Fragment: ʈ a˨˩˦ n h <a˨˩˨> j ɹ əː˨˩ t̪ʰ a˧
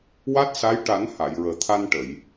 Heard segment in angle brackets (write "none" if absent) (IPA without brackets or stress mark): a˨˩˨